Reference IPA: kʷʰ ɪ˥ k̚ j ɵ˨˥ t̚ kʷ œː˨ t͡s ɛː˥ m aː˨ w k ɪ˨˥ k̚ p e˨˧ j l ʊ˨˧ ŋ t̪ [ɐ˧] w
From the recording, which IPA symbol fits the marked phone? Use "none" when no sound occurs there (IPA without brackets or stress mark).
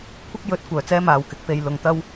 ɐ˥